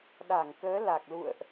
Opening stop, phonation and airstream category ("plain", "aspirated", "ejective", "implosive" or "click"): implosive